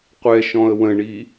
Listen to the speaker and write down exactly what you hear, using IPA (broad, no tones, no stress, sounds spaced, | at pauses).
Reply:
qʷ ɛ ʃ ɔ̃ ə̯ w ə̃ ɳ i